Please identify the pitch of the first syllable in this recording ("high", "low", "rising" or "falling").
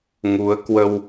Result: rising